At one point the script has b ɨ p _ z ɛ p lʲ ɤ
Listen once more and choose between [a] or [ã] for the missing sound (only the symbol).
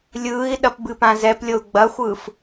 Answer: ã